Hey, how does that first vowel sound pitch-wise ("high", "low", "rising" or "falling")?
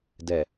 low